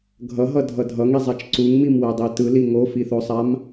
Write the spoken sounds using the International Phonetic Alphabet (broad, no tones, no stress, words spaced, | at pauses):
ɡʱʌɦʌdʱʌ dʱʌŋizˤat͡ʃ ǀuŋmimwɛdˤi tɯli ŋofiθosˤam